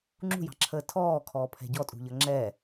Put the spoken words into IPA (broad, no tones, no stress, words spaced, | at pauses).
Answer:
ŋ͡ǁṳjɑ̤ǁʰəː tʰɔːkʰɔːpʰɛ̤ ɟɔtʼṳʎʌ ŋ͡ǁɛ